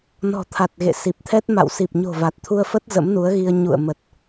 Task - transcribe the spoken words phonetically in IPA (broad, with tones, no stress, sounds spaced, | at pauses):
n ɔ̤˨˩ t̪ʰ a˨˩ t̚ ɣ ḛ˧˨ s i˨˩ p̚ t̪ʰ ɛ˦˥ t̚ m a̰˧˨ w s i˨˩ p̚ ɲ o̤˨˩ v a˨˩ t̚ t̪ʰ u˧ ə̯ f ə˦˥ t̚ z ə̰˧˥ m n u˨˦ ə̯ ɣ i˧ ə̯ ɲ ṵ˧˨ ə̯ m ə˨˩ t̚